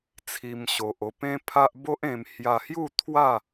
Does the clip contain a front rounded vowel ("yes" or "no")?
no